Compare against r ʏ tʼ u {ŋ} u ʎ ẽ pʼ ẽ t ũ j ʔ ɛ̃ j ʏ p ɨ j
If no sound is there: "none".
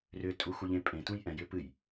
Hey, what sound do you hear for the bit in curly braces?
x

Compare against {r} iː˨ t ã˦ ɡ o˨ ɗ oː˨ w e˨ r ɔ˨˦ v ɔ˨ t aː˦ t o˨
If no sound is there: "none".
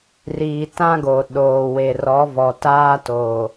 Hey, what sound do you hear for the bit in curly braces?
r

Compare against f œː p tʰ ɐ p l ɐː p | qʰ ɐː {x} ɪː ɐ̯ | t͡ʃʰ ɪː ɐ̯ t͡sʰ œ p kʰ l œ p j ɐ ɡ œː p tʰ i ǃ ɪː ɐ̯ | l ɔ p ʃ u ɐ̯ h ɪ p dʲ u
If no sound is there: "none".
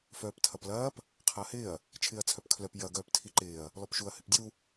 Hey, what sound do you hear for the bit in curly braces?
h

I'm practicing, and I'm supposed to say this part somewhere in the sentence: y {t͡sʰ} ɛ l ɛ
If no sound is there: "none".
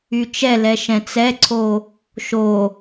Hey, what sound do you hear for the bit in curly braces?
t͡ʃ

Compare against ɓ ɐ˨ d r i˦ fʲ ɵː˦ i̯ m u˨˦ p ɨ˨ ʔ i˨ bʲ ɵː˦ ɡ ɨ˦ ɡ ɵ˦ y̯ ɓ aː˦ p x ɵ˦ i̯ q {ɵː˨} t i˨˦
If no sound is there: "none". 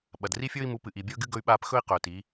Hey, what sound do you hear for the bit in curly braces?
ɵː˨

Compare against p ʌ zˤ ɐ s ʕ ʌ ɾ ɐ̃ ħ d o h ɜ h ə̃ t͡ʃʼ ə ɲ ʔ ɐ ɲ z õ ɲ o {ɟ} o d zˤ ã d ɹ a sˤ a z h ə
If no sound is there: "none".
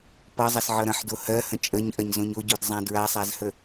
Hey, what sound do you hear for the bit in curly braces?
ɟ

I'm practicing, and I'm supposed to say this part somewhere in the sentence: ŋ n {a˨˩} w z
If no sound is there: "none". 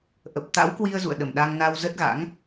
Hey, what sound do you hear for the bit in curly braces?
a˧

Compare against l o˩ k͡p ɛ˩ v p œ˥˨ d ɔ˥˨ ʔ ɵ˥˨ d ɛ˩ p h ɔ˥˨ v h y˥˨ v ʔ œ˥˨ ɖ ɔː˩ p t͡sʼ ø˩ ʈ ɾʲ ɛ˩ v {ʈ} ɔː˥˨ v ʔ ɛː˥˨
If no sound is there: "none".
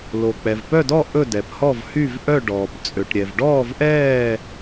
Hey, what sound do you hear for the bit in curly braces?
ɖ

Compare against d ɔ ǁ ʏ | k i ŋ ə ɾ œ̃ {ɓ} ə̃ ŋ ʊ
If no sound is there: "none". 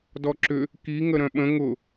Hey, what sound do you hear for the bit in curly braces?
ɓ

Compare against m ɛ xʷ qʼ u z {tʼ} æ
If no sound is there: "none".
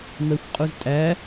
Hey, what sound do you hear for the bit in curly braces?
tʼ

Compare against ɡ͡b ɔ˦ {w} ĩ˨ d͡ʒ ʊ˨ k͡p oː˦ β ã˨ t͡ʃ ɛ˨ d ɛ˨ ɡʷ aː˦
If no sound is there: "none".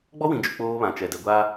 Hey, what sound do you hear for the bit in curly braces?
w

